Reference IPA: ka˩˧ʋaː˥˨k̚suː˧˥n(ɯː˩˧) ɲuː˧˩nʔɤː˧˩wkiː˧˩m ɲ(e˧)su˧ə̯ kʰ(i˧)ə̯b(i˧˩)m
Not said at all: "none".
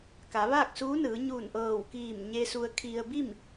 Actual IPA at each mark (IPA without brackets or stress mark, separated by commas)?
ɯː˩˧, e˧, i˧, i˥˨